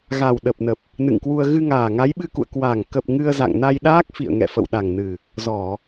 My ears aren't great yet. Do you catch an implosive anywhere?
yes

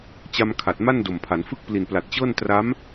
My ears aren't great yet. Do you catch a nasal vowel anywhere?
no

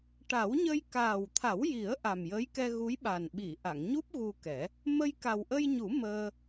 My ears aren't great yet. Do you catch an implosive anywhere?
yes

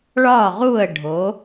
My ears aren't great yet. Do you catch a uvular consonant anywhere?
yes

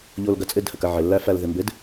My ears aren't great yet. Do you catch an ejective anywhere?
yes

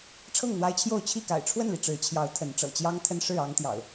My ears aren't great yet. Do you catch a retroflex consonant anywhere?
yes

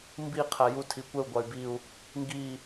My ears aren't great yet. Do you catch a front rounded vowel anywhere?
yes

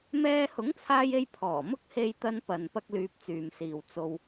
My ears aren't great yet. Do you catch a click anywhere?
no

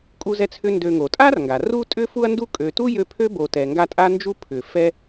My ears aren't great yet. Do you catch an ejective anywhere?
yes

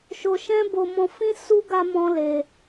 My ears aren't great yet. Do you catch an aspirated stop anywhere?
no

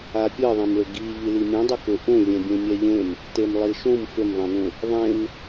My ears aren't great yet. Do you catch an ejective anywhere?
no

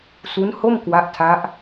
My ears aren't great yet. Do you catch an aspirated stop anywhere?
yes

